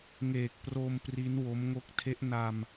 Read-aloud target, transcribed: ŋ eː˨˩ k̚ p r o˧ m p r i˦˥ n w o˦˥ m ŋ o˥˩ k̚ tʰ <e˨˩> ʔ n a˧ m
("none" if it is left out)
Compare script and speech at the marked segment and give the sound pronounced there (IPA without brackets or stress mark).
e˦˥